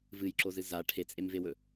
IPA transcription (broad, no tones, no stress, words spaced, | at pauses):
vɨjǁozɨ za ʈʰet͡sʼemvewɵ